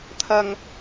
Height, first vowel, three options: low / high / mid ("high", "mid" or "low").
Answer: low